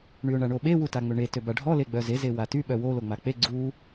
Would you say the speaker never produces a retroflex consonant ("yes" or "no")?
no